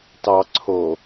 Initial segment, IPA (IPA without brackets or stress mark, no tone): t